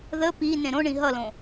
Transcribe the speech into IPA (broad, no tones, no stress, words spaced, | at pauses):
ðə pi nẽɾõɳĩ ɦʌlõ